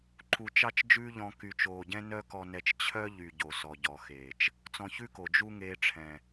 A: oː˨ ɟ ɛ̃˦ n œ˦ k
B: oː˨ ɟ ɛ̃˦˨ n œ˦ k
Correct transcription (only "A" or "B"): A